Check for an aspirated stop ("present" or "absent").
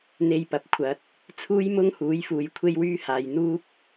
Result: present